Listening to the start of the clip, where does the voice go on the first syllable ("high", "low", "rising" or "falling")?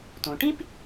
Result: low